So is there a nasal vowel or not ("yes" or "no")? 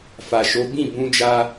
yes